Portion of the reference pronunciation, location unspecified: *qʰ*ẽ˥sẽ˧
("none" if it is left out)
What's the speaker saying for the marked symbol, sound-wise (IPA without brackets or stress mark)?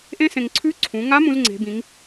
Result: ʔ